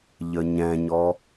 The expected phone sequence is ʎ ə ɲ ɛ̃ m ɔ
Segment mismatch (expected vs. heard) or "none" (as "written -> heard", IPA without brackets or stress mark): m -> ɲ